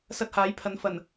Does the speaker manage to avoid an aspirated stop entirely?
no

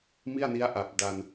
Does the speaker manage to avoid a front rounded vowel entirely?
yes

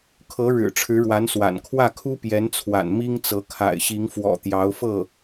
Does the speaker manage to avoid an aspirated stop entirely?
no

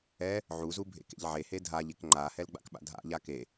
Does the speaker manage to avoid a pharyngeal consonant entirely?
no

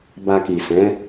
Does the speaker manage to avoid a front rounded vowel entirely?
yes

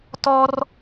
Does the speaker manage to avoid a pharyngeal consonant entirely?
yes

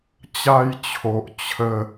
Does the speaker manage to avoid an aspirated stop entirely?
no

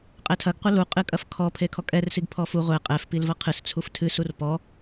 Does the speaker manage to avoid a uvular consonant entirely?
no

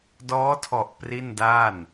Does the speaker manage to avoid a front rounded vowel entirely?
yes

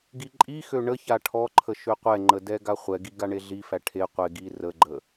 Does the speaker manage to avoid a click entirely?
no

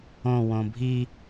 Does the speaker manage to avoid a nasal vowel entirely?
no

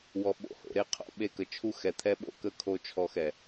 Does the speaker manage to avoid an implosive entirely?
no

